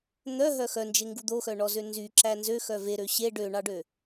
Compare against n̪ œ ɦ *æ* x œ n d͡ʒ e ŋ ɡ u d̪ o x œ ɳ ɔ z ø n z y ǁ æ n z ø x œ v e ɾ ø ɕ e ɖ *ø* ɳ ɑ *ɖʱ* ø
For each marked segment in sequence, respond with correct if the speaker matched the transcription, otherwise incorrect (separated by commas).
incorrect, correct, incorrect